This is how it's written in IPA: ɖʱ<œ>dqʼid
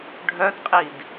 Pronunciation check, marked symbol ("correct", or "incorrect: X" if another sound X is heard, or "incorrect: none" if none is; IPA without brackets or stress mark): correct